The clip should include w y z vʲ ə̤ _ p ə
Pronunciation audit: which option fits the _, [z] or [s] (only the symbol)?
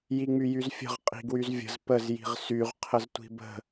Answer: z